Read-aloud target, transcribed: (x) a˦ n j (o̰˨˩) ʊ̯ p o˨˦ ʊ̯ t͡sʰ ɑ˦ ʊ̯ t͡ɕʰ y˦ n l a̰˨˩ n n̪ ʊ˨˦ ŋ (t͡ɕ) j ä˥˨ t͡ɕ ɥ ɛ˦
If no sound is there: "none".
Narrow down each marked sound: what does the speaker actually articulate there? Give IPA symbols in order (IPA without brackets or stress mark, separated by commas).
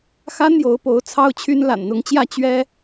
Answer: x, o˨˦, t͡ɕ